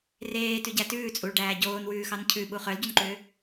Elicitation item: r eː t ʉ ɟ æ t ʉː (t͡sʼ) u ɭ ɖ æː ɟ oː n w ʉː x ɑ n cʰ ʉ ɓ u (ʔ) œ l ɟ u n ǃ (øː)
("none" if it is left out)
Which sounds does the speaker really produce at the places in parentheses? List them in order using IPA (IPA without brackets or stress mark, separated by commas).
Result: t͡sʼ, χ, øː